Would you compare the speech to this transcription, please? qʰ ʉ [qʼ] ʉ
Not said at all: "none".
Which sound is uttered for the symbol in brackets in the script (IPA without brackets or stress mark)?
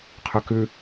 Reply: k